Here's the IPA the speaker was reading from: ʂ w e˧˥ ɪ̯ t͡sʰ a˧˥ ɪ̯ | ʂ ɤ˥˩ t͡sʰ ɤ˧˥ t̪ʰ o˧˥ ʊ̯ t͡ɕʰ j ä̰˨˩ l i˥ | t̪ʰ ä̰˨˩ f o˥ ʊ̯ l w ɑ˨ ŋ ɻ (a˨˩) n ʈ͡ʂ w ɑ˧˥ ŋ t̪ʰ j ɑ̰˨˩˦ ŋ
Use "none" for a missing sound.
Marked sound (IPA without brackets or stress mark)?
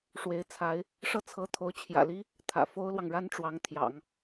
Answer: a˥